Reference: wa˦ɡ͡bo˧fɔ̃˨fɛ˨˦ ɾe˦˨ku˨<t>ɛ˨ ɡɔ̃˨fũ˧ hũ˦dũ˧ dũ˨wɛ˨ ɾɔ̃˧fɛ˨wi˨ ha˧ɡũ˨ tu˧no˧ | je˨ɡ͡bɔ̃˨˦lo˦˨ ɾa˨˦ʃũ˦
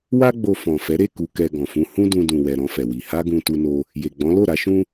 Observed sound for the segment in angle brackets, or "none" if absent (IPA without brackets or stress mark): k